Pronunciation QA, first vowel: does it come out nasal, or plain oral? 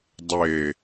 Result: oral